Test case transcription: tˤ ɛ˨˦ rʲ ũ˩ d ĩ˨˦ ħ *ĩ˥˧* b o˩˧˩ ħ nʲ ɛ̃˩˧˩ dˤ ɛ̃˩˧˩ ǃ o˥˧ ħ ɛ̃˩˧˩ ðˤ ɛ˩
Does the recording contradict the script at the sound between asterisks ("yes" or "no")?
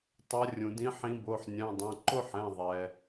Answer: yes